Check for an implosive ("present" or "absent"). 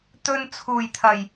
absent